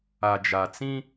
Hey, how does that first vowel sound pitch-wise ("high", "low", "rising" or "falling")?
low